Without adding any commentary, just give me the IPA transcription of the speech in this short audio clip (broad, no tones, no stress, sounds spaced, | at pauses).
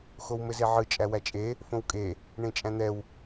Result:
x o w m ɘ z e ʕ ɯ t͡ʃʼ æ w æ t͡ʃʼ e | f õ w kʼ e | ɳ ẽ t͡ʃʼ æ̃ n̪ ɛ w